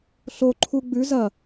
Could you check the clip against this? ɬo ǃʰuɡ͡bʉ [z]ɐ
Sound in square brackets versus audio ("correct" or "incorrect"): correct